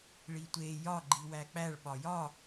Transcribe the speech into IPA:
ɭitʷe jɒ ɡ͡ǃiwæk͡pæɭ ɓɒjɒ

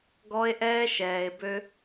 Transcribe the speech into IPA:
ɡɔ˦e̯ʔɛː˦ʃɛː˨e̯bø˦

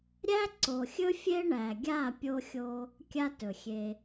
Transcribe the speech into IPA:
ɾʲæ˦ ǀo˨xʲɵ˦ fʲe˦ɳæ˨ɡʲa˦˨ pʲo˧xʲo˧ | kʲa˦tɵ˨xʲe˧

